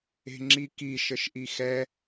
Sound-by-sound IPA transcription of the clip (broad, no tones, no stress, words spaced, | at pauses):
e̤ŋ͡ǁiki ʃəʃʔixɛ